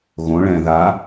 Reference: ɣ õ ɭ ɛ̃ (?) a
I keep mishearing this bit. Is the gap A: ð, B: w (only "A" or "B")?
A